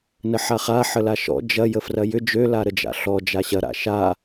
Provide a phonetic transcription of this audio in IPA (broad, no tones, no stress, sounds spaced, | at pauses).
n ə ħ a χ a ħ ə l a ʃ ɔ̰ d͡ʒ ɐ j ə f r ɐ j ʏ d͡ʒ ø l a ɾ ə d͡ʒ a̰ ɬ ɔ d͡ʒ a ɕ ɐ ɾ a̰ ʃ a